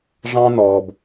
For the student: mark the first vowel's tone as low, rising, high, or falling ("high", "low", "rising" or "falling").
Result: high